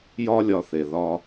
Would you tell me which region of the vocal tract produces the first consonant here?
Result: palate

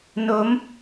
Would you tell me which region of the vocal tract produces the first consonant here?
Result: tongue tip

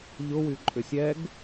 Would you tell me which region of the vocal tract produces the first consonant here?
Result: palate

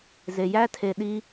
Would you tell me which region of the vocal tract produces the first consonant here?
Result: tongue tip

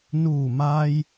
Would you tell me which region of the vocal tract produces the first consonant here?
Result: tongue tip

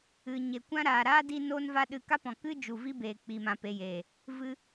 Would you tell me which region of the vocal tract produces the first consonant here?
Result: palate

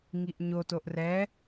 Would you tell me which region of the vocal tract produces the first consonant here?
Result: velum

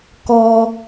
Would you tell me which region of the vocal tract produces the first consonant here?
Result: velum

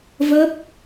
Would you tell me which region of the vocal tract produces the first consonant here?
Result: lips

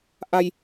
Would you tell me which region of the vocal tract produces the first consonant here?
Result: throat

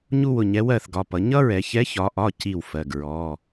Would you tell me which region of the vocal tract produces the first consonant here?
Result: palate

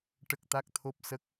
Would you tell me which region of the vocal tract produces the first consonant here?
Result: retroflex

